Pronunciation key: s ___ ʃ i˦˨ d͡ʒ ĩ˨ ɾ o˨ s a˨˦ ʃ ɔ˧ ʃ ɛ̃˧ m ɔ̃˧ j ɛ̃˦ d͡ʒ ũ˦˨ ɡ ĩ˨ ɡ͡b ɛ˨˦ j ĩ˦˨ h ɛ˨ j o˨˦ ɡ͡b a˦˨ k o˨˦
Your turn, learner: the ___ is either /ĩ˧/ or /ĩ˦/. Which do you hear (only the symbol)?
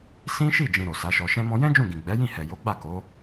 ĩ˦